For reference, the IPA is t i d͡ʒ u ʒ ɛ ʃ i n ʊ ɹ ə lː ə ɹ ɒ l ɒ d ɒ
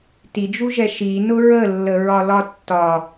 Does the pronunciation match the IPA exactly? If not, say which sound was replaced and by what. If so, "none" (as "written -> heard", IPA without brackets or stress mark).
d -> tː